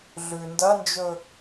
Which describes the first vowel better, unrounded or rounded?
rounded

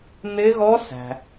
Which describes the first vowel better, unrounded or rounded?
unrounded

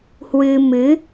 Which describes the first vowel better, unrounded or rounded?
unrounded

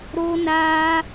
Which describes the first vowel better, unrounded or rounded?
rounded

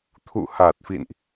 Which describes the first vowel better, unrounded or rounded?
rounded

